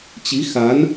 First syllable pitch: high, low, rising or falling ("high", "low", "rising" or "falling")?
rising